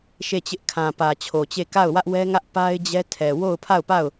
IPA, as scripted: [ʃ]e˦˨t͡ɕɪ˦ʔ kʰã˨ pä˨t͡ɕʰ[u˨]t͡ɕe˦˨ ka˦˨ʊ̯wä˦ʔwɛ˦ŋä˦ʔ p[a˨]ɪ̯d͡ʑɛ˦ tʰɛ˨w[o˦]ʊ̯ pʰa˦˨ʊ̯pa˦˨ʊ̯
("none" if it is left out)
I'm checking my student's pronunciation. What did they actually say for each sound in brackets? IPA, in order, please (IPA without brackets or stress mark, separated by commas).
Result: ʃ, o˨, a˦, o˦˨